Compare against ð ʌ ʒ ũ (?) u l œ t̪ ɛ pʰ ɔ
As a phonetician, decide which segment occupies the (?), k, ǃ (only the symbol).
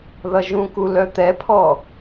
k